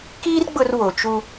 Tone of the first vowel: high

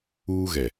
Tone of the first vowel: high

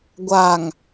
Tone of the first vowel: low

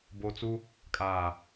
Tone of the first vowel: low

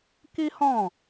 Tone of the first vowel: high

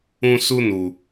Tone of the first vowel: high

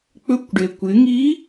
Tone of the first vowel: rising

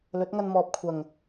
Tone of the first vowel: rising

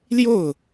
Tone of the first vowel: falling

